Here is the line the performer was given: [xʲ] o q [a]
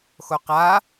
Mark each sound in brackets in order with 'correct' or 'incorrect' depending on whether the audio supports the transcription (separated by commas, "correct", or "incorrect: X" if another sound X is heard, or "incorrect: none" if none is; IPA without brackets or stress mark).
incorrect: x, correct